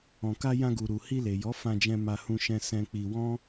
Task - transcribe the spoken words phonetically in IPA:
ɔ̃˨ k a˧ j ã˧ ɡ u˨ ɾ u˨ h i˧ l e˨ j ɔ˨˦ f ã˧ d͡ʒ ɛ̃˧ m a˧ h ũ˧ ʃ ɛ̃˧ s ɛ̃˧ k͡p i˧ w ɔ̃˦

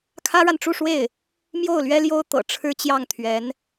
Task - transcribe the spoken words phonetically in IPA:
kʰ ä˥ ɻ a˨ n ʈ͡ʂ u˥˧ ʂ w e˥˩ ɪ̯ | m j o˥˩ ʊ̯ l ɥ ɛ˥ l j o˥ ʊ̯ t̪ ɤ̰˨˩ ʈ͡ʂʰ ɻ̩˥ t͡ɕ j ɑ˥˩ ŋ t̪ʰ ɥ ɛ˧˥ n

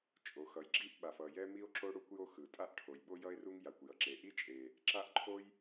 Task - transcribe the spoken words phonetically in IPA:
t͡ʃʼ o˩ x ʌ˩ j ɡ͡ǁ i˥ ʔ ɓ a˩ f ʌ˩ j ɛ˥ m i˥ o̯ ǁ o˥ ɽ u˥ kʷ j o˥ x ɯ˩ tʼ a˥ ʔ ʈʰ o˩ j ɓ o˥ j ʌ˥ e̯ r u˥ ŋ j a˩ kʷ j ʌ˩ ǁ e˩ ʔ i˥ t͡ʃʼ e˩ | ǁ a˥ ʔ ǃʰ o˥ j

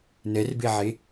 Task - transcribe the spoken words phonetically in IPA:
n ɛ r b e ʕ e

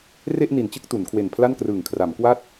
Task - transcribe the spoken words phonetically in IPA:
r e˥˩ ʔ n i˨˩ n t͡ɕ ɯ˥˩ k̚ t u˩˦ n kʰ w e˨˩ n pʰ l a˥˩ n k r ɯː˨˩ ŋ kʰ r a˩˦ m k w a˥˩ t̚

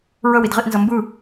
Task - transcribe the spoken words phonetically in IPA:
ɹ ə w i d ʁ i ʔ n z ʌ m b ɯ

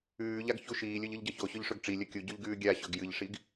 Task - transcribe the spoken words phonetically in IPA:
ʉː ʎ a ɡ ç u ʃ iː lʲ ɵ ʎ ɨ ʎ ɟ ɐ ç o ɕ ɵ ʎ ʂ ɵ ɡ ʈ͡ʂ i lʲ ɐ kʲ u ɟ ʉ ʎ ɡ ʉː ɡʲ a ɕ ɵ ɡ j ɨ ʎ ʂ i ɡ

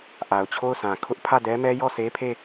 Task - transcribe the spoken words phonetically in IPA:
ʔ a˨ ʊ̯ t͡ɕʰ o˦˨ ʊ̯ sʰ ã˨ kʰ ʊ˦ ʔ pʰ ä˦˨ d ɛ˦ m ɛ˦ j ɔ˦˨ s e˦ pʰ e˦˨

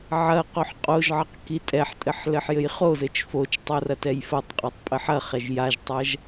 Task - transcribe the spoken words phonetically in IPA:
ʕ ɐ q o ħ qʼ o ʒ ʕ ɐ q k i tʼ ɛ ħ tʼ ɘ ħ l ɘ ħ j ɘ j χ o z ɘ t͡ʃ f o t͡ʃ tˤ o r ɐ t ɛ j f ɐ tˤ qʼ ɛ tˤ pʼ ɘ ħ ɐ χ ɛ ʒ j a ʒ tˤ ɐ ʒ

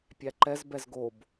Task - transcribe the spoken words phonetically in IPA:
pʲ æ ǃ ɛ z b ɛ z ɡ o b

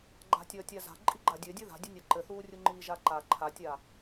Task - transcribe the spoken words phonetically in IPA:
ɡ͡ǃ a̤ tʲ ʌː tʲ a z a̤ ǃʼ i ɡ͡ǃ a dʲ ɘ dʲ ɘ ð a̤ dʲ ɘ nʲ ʌ ǃ ɘ θ uː rʲ u ŋ͡ǃ iː ʒ a ǃ a ǃʰ a tʲ a

